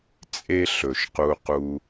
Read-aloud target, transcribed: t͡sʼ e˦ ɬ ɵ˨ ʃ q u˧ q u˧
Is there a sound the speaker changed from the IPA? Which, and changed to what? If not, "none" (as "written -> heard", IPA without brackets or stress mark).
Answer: none